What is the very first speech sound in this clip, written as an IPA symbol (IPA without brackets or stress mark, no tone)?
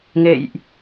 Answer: ŋ